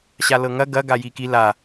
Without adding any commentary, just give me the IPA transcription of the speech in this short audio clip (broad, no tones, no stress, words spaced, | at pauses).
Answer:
ɕalɤŋɐ ɡɐ ɡajiki la